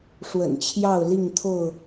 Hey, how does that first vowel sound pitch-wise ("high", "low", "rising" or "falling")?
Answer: low